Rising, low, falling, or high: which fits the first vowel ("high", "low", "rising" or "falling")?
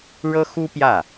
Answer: high